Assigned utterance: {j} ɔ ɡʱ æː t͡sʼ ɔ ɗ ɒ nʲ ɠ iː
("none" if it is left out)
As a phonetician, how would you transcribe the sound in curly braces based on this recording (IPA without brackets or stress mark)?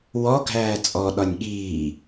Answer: w